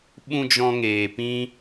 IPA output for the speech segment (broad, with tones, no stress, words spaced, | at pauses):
ɓũ˧ d͡ʒɔ̃˧ŋeː˨pĩ˦